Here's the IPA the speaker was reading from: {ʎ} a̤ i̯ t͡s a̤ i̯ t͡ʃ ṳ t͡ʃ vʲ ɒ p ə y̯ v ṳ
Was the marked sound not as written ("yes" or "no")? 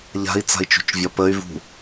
no